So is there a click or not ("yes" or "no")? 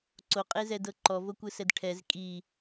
yes